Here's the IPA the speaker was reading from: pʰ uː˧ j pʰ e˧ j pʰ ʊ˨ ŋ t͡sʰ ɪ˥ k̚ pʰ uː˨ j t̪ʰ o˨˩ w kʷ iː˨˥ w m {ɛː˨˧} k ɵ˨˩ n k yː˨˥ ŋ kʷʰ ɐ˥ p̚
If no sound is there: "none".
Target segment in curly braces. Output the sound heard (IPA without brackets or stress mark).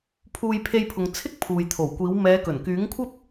ɛː˨˧